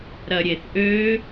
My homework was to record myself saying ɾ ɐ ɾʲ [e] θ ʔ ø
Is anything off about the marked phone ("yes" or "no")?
no